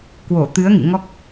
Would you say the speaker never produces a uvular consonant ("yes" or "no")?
yes